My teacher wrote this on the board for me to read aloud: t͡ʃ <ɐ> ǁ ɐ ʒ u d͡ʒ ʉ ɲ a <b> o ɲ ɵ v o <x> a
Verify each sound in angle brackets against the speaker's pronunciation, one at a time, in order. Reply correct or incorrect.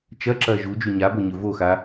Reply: correct, correct, correct

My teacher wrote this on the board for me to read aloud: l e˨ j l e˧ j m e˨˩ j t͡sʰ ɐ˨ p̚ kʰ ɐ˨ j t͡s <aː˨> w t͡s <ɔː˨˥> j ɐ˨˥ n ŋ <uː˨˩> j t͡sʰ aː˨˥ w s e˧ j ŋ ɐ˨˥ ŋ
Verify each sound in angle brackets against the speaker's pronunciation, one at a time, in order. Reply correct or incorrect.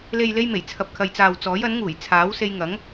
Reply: correct, correct, correct

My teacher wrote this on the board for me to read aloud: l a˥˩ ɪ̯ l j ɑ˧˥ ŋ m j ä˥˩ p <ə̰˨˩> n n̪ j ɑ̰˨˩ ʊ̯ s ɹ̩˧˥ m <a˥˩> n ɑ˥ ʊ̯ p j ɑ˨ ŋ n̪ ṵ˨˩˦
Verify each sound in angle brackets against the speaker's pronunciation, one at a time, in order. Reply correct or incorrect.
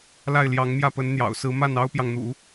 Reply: incorrect, correct

